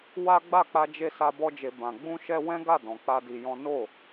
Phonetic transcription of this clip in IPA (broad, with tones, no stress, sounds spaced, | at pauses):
w a˦ ɡ͡b a˦˨ k͡p a˧ d͡ʒ e˧ s a˦ b ɔ˦ d͡ʒ e˧ b ã˧ ɡ͡b ũ˦ ʃ ɛ˦ w ɛ̃˦ ɡ a˦˨ d ɔ̃˨˦ k͡p a˦ d i˧ j ɔ̃˦ n o˦˨